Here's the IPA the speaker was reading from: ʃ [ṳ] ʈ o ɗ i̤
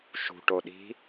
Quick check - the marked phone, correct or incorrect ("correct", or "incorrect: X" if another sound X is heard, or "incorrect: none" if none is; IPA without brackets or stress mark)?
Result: correct